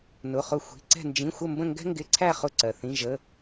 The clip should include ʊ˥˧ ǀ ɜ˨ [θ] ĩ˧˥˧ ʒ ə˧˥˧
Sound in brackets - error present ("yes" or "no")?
no